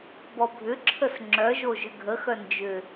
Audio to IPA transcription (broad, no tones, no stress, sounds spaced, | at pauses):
b ɔ bʱ ʏ ǁʰ ə s ŋ͡ǁ œ ʒ o ʒ ʏ ɡʱ ə x œ n d͡ʒ ʏ